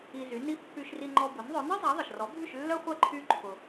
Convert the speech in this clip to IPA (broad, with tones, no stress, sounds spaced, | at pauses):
i˧ z y˩˥ n i˥ pː y˧ ʃ r i˧ ŋ͡ǃ ɔ˧ b ʊ˩˥ n ðˤ œ˩˥ n ɐ˥ zˤ a˩˥ ðˤ ə˩ ʃ r ɔ˩˥ bʱ y˥˩ ʃ lː œ˥ χʷ ɐ˥˩ ǃʰ y˧ ǃʰ ʊ˩